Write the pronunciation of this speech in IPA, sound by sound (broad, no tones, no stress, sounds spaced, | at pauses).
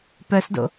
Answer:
p œ s d o̰